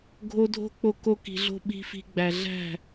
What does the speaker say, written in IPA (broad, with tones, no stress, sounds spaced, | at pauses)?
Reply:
ɡʱ o˧ dʱ o̤˦ k͡p o˧ k o˧ k i̤˨ ɮ o̤˧ ɓ i̤˧ f i̤˧ ɡ͡b æ˨ ɮ æ̤˦˨